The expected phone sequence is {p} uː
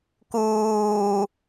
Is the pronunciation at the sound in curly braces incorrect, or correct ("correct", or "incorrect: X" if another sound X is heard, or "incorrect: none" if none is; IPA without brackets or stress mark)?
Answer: incorrect: k